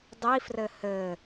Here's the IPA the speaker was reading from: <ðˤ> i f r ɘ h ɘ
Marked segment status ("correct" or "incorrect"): incorrect